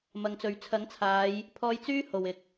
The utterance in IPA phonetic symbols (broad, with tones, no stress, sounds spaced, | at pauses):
m ɐ˨˧ ŋ t͡s ɵ˨˧ ɥ t͡sʰ ɐ˨˥ ŋ t͡sʰ aː˨˧ j | pʰ ɔː˧ j t͡s yː˥ h o˨ w ɪ˨ k̚